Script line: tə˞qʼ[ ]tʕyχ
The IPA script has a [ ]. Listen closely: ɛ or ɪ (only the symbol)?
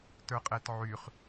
ɛ